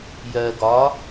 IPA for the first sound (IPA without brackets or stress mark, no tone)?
j